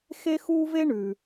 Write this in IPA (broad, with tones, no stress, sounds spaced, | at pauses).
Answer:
x e˦ x uː˦ v e˦ ɳ ʉ˩